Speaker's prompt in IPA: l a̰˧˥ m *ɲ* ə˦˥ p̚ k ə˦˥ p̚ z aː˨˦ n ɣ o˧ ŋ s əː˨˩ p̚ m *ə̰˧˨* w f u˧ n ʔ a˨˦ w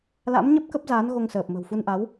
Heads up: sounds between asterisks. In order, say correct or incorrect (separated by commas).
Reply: correct, incorrect